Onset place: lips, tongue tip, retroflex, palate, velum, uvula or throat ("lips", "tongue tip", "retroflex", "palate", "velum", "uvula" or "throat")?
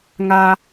velum